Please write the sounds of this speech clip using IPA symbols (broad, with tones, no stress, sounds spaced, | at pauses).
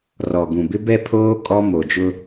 r ɔ˨ ɡ ũ˨ b ɪ˦ b ɛ˦ pʰ oː˦ kʼ ɔ˦ m o˨ d͡ʒ ʊ˦